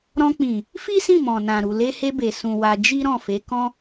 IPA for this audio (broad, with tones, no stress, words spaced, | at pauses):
ɾɔ̃˧k͡pĩ˨ | fi˦sĩ˦˨mɔ̃˨ nã˨ɾu˨ le˧he˧be˨ sũ˨ wa˧ d͡ʒi˦ɾɔ̃˦˨fe˨˦ kɔ̃˦